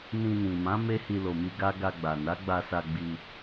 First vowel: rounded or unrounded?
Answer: unrounded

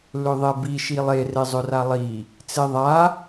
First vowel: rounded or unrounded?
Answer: rounded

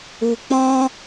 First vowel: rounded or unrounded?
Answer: rounded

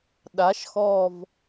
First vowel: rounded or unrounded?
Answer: unrounded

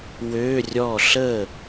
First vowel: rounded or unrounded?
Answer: rounded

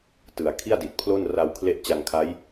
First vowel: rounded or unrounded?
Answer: unrounded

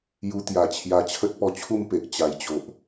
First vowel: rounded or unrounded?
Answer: rounded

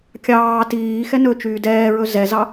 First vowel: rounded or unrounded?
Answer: unrounded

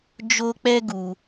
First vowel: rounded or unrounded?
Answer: rounded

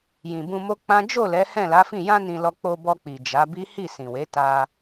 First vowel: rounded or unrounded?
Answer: unrounded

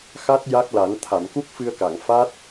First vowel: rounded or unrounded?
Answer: unrounded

